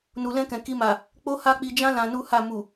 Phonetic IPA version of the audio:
n u˨ l ɛ̃˧ k ɛ̃˨ k i˧ m a˨ | k͡p o˦ h a˦ k͡p i˧ d͡ʒ ã˦ l ã˧ n u˦ h a˦˨ m u˨

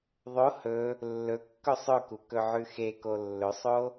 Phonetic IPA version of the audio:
ðˤ o h ɵ | lː ɵ kː ɵ sˤ ɵ k u k ɵ ʕ ʉ x e k o lː ɵ sˤ o

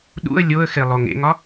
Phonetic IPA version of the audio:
ɗ ṵ ə̯ lʲ o ə̯ x e lˠ o ŋ ḛ ŋ ɒ

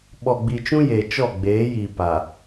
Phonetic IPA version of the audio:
ɓ ɔ˨ ɡ͡b i˨ t͡ʃ ũ˦ j e˨ t͡ʃ ɔ˦˨ ɡ͡b eː˨˦ j i˨ p a˨

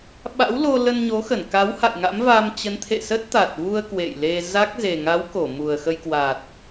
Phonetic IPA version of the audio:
ɓ a̰˧˥ w l o˧ l ə˧ n ɲ o˨˦ x ə˧˩ n k a˨˦ w h a̰˧˨ j ŋ a̰˧˥ m v a˧ m t͡ɕ ə˨˦ n t̪ʰ ḛ˧˨ s ə˦˥ t̚ t̪ a˨˩ t̚ v u˧ ə̯ k w ḛ˧˨ j l e˧ z a˦˥ k̚ z e˨˩ ŋ a˨˦ w k o˧˩ m u˨˩ ə̯ x ə˧ j k w a˨˩ t̚

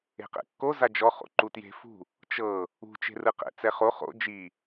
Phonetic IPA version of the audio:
e̤ q ɛ̰ kː o z a d͡ʒ ɔ χ o̰ ǃ u t j e̤ f ṳ | t͡ʃ ɤ | ṳ t͡ʃ e̤ r ɯ q ɛ̰ t͡s ɛ χ o χ o̰ d͡ʒ i

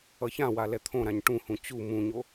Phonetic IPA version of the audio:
ʌ ç ã w a l ɛ t̪ʰ õ ɾ ã ɲ ʈ ũ h ũ t͡ɕ u m ũ ɲ o

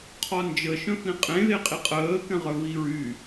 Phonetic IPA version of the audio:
qʰ ɔ n d͡ʒ ə ʃ œ̃ f ĩ qʼ ẽ ð e qʼ i qʼ əː k ɛ̃ ʁ œ v i ɹ y

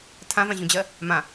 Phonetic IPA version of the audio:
tʰ ã v ã ʑ ũ d͡ʑ ɜ | m ã

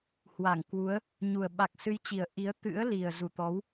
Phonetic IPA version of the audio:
h w a˧˩ ŋ k w u˨˦ ə̯ | ɲ u˨˩ ə̯ ɓ a˨˩ k̚ s ɨ˨˦ j t͡ɕ i˨˩ ə̯ ʔ i˨˦ ə̯ t̪ ɨ̰˧˥ ə̯ l i˨˩ ə̯ z u˧˩ t̪ ɔ˨˦ w

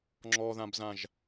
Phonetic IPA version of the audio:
ŋ͡ǁ ɔ ð ã b z ã ʒ

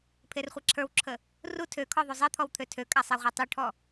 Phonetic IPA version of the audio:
pʰ e r χʷ a ǁʰ ə˞ w ǁʰ ə | r u tʰ ø kʰ ɔ ðˤ u zˤ e t̪ʰ ɔ w t̪ʰ ø tʰ ø kʼ a sˤ e ʁʷ ə˞ tˤ u ʈʰ ɔ

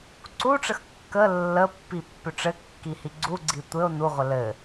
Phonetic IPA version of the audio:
ǀ u ʈ͡ʂ ə x kː ə lː ə pː i pː ʏ ʈ͡ʂ ɘ kː i h i ɡ͡ǀ u ɡ͡ǀ i tʷ ɘ o̯ n u ʁʷ ə l ɘ

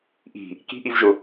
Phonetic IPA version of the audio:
ʔ i̤ | k i̤ ʔ i v ʒ ʊ

